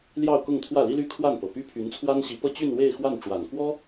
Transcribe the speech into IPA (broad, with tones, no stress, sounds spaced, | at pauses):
l j ɑ˥˧ ʊ̯ k ʊ˥˧ ŋ t̪ʰ w ä˥˩ l i˥ l y˥˧ kʰ w a˥˩ n p ɤ˨˩ p y˥ pʰ y˧˥ n t͡sʰ w a˥ n ɕ i˧˥ p ɤ˥ t͡ɕ y˥˧ n w e˥˧ ɪ̯ x w a˥˩ n ʈ͡ʂ w a˨˩ n k w ɔ˥